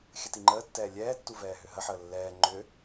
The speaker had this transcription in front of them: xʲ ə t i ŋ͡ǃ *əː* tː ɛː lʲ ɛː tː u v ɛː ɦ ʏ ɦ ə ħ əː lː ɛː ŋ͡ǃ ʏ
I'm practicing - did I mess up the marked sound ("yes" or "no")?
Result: no